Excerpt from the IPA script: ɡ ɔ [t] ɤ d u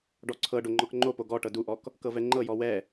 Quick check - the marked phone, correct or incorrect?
incorrect